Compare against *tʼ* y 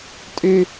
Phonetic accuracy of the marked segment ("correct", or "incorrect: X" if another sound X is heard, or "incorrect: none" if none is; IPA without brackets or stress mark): correct